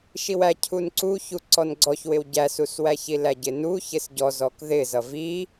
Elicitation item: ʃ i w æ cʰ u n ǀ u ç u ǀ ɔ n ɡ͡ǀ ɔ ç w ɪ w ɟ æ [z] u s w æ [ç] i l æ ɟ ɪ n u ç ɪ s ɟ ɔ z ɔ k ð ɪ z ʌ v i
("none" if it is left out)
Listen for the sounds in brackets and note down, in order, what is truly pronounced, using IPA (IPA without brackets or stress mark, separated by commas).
s, ç